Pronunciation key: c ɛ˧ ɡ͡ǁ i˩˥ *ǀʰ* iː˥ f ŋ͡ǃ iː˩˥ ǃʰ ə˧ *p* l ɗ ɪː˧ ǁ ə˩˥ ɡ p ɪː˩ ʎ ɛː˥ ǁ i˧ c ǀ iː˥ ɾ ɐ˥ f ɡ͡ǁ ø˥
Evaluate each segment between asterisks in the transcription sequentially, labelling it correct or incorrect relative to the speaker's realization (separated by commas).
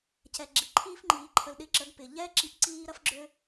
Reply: incorrect, incorrect